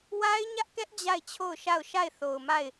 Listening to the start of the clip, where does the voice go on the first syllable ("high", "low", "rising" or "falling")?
high